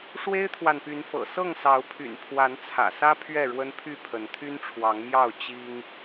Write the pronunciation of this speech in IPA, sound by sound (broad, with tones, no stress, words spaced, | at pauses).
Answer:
ʂwe˦ɪ̯t̪ʰwa˨npy˨˦nfɤ̰˨˩ sɤ˥˨ŋsɑ˨˦ʊ̯pʰy̰˨˩n pʰwa˨˦nt͡sʰä̰˨˩sä˦ pʰɥɛ˥˨ɻwə˦npʰy˥˨pʰə˨˦n t̪ʰy˦nʈ͡ʂʰwɑ˨˦ŋmjɑ˥˨ʊ̯ t͡ɕi˦ŋ